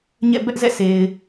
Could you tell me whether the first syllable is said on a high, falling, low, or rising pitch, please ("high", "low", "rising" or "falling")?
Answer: falling